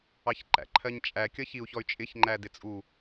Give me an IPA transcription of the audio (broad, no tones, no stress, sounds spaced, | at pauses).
ɑ ç ǃ æ̰ ǃʰ ɜ ɲ t͡ʃʼ æ kʲ ʌ ç i u̯ ç ɔ y̯ t͡ʃʼ ɪ ç ŋ͡ǃ æ d ɪ t͡sʼ u